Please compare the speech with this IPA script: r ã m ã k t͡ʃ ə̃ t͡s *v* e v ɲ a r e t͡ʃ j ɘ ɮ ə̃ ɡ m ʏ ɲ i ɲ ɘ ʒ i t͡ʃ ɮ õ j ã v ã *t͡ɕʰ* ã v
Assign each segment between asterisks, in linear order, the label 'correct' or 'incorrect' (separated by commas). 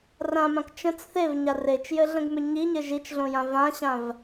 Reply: incorrect, incorrect